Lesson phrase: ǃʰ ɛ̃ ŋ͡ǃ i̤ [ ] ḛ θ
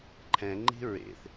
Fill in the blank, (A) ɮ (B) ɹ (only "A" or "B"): B